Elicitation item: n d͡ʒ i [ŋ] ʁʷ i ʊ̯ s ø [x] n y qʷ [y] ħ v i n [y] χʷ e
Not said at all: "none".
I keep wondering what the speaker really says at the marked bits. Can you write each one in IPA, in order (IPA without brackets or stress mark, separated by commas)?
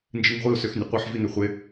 ŋ, x, i, ø